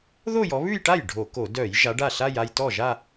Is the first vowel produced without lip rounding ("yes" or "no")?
no